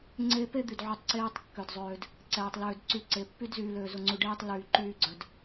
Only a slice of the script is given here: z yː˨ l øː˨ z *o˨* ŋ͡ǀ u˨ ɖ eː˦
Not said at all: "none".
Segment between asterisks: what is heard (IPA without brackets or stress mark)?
o˨